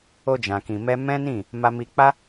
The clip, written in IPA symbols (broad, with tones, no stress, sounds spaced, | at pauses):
o˧ d͡ʒ ã˨ k ĩ˨ m ɛ˧ m ɛ̃˦ n ĩ˦˨ | m a˧ m i˧ k͡p a˦